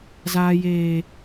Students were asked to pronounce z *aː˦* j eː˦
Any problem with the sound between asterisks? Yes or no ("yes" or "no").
no